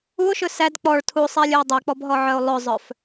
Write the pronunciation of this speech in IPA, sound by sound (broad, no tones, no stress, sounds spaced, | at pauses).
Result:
u o̯ ʃ ɵ s æ d k͡p ɔ ɭ tʰ u sˤ ɛ lʲ ɵ e̯ dˤ ɛ k͡p ɔ b ɦ ɔ ʕ œ o̯ lˠ ɵ zˤ œ f